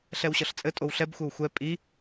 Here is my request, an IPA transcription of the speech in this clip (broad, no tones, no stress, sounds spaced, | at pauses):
ɬ ɛ w ɕ ʌ ɬ t͡sʼ ɘ tʼ o w ɬ ɛ b xʷ ɘ w xʷ ɛ pʼ i